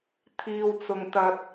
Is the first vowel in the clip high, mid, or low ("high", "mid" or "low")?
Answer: high